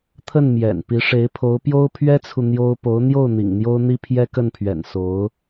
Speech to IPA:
t̪ʰ ə˥˩ n m j ɛ̰˨˩ n p i˧˥ ʂ e˧˥ ɪ̯ pʰ o˧˥ ʊ̯ p j o˥ ʊ̯ pʰ ɥ ɛ˥ t͡sʰ u˨ n̪ j o˥ ʊ̯ p o˧˥ ʊ̯ n̪ j o˥˩ ʊ̯ n̪ ḭ˨˩ ŋ n̪ j o˥ ʊ̯ n̪ i˥ pʰ j ɛ˥ k ə˥˩ n pʰ ɥ ɛ̰˨˩ n s o˧˥ ʊ̯

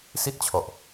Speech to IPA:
s i˥˩ t̚ t͡ɕʰ ɔ˨˩ ʔ

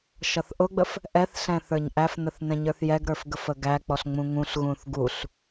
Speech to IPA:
ʃ ʌ θ ʔ ʊ ɡ͡b ə f | ʔ ɛ θ ɬ ɛ̃ θ ə˞ ɲ ʔ æ f n ə θ n ɛ̃ ɲ ə˞ θ j ɛ ɡ ɾ ə˞ f ɡ ə f ə ɡ æ k͡p ɔ ɬ ŋ͡m ũ ŋ ũ ɬ ɣ ũ θ ɡ u ɬ

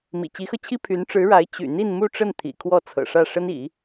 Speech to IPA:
m ḭ˨˩ t͡ɕ i˧˥ x ɤ˧ t͡ɕʰ i˥ pʰ y˧˥ n ʈ͡ʂ ɻ̩˧˥ ɻ a˧˥ ɪ̯ t͡ɕ y̰˨˩ n̪ i˥˧ n m u˥˧ ʈ͡ʂ ə˥˩ n t̪ʰ ḭ˨˩ kʰ w ɔ˥˩ t͡sʰ ɤ̰˨˩ ʂ ä˥˩ ʂ ə˥ n ḭ˨˩˦

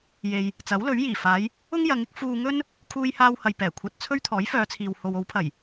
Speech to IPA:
j e˨ j | t͡s ɐ˨˥ w l ɵ˨˥ ɥ j iː˨˩ f aː˨˧ j | ʊ˥ ŋ j ɐ˨˧ ŋ ɪ˥ k̚ f uː˧ ŋ ɵ˥ n | kʰ uː˥ j h aː˥ w h ɐ˧ j p ɛː˨˩ kʷʰ ɐ˧ t̚ t͡sʰ ɵ˥ ɥ t̪ʰ ɔː˨˥ j f œː˨˧ t͡sʰ iː˨ w h o˨ w o˨˧ w pʰ ɐ˨˩ j

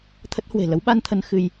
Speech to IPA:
t̪ʰ ə˦˥ t̚ h w e̤˨˩ l ə˨˦ w ɓ a˧ n t̪ʰ ə˧ n x ɨ˧ j

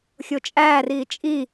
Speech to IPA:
xʲ o t͡ʃʼ æː r iː t͡ʃʼ i

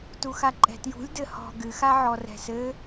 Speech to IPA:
t u x a ǃʼ ɛ̤ t j ṳ lʲ d ɘ h ɔ̤ ɡ ɨ x a ʕ ɔ r ɛ̤ s ɘ

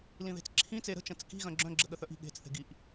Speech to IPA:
l ĩ ð e̤ t͡s ǁʰ ĩ t͡s e ɾ ə̤ t͡ʃ ə̃ t͡s k i̤ ɣ œ̃ ɡ͡ǁ œ̃ ɡ͡ǁ ə ɠ ə θ œ ʔ i̤ ɠ e̤ t͡s θ e̤ ɡ i ʔ

